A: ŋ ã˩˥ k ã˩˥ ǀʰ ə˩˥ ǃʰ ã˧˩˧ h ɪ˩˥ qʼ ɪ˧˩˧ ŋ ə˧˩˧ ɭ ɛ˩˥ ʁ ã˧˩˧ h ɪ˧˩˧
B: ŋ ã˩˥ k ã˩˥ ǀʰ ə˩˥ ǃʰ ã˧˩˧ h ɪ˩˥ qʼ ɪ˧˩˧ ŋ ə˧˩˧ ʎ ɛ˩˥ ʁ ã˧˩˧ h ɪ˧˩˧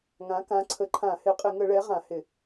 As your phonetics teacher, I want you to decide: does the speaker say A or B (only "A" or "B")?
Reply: A